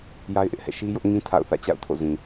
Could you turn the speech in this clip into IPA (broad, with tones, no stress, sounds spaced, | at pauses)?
j a˦ ɪ̯ ʔ ɪ˦ ʔ h ɛ̰˦˨ ʃ i˦ j ʊ˦ ʔ ŋ ĩ˦ tʰ a̰˦˨ ʊ̯ θ ä̰˦˨ t͡ɕ a̰˦˨ ʊ̯ tʰ o̰˦˨ z ĩ˨